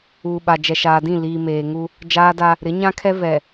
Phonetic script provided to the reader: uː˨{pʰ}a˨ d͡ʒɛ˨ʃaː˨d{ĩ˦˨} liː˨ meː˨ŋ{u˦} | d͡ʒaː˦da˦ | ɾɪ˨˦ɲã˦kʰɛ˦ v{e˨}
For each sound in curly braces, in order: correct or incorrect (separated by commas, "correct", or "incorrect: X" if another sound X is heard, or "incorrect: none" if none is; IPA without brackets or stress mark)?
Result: incorrect: ɓ, correct, correct, incorrect: ɛ˨